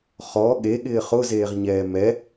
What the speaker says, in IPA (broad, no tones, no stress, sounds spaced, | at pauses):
χ ɔ ɠ e ɠ ɪː χ ʊ z eː ʁ ɲ ɛː m ɛ